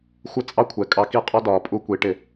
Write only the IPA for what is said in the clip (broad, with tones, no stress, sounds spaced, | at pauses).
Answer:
xʷ ə˦ t͡sʼ ɑ˦ kʷʰ ɛ˨ kʼ ɑ˧ k i˦˨ qʼ ɒ˦ d ɒː˨ pʼ u˧ kʷ i˨˦ ʈ ɪ˧